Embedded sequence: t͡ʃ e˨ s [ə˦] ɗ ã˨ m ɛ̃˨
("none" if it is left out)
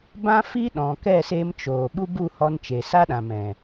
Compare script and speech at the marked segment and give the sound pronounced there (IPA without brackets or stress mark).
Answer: a˦